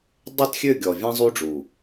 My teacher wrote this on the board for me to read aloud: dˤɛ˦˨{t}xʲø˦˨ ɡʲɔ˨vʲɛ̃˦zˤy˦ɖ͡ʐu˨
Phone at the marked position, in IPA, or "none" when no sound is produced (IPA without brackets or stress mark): t